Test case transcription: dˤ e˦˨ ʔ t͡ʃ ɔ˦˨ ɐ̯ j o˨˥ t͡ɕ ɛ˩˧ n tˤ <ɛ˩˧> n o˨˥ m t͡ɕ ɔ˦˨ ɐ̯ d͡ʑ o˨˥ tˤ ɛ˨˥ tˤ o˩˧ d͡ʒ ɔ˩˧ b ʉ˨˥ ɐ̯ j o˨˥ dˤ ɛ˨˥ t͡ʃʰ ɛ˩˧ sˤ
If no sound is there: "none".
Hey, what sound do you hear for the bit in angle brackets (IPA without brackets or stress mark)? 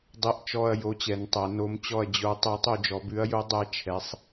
ɛ˩˧